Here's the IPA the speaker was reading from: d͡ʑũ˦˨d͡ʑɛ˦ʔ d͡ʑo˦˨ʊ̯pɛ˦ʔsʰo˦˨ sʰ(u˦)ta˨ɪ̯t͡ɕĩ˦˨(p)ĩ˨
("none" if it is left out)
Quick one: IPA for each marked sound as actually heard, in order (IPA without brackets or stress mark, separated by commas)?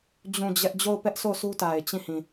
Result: u˦, h